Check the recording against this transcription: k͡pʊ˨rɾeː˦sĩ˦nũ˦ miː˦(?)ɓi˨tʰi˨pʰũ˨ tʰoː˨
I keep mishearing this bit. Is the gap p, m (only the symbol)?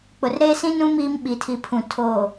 m